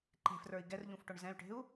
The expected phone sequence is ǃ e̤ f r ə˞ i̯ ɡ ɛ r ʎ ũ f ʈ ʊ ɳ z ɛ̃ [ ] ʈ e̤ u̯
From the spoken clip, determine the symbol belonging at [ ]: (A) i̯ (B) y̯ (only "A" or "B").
B